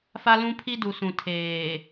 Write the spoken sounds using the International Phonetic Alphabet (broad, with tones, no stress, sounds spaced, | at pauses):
f a˦ l ũ˦ pʰ i˦ d u˨ s ũ˨ tʰ eː˨